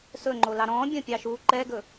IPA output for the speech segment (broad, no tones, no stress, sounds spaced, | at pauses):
s ɵ ŋ͡ǃ o l ɑ ɾ ɔ̃ bʲ ɐ̃ pʲ ɑ ʃ u ǃ ɛ ɡ ɵ